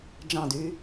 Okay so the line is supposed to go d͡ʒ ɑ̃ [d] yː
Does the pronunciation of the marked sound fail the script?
no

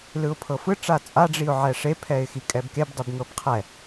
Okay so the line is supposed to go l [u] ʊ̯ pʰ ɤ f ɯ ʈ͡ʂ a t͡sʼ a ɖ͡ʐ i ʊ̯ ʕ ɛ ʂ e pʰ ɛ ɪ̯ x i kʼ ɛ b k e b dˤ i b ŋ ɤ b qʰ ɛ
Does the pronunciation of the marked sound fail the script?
yes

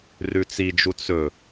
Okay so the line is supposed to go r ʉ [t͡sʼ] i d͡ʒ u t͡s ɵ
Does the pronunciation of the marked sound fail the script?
yes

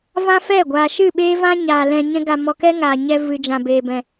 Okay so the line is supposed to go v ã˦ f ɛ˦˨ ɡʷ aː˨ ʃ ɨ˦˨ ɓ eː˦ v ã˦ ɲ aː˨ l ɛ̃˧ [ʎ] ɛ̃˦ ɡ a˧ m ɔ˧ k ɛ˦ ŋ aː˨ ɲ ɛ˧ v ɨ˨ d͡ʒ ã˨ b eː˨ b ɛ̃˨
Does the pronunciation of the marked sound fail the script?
yes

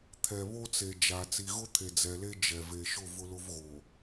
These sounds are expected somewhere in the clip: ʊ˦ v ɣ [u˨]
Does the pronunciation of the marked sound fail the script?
yes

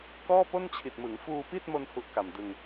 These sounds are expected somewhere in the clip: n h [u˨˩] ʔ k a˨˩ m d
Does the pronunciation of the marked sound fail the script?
yes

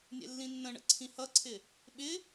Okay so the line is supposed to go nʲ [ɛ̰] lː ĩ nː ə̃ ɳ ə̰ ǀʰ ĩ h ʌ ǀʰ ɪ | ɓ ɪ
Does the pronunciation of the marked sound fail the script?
no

